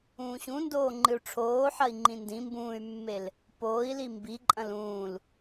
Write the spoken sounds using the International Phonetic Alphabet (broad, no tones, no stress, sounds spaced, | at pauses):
ũː ɕ ũ n d oː ŋ͡ǃ ɨ u̯ ʈ͡ʂʰ oː ħ ɐ i̯ ŋ͡ǃ ĩ n d ĩ m b ũː y̯ mː e l | p oː i̯ l i m b i ǃʼ ɐ̃ l ũː l